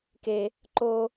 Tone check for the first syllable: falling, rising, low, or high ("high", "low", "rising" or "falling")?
high